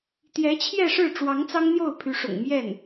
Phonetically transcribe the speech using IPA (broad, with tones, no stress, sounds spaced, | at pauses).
t̪ j ɛ˧˥ t͡ɕʰ j ɛ˥˧ ʂ ɻ̩˥˩ ʈ͡ʂ w ɑ˧˥ ŋ t͡s ɑ˥ ŋ n̪ j o˥˩ ʊ̯ pʰ y˧˥ ʂ ʊ̰˨˩ ŋ m j ɛ˥˩ n